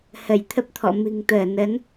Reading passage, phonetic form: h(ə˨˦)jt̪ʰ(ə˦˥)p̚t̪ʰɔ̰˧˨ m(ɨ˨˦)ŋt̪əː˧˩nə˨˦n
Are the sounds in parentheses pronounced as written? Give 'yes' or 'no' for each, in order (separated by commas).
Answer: no, yes, no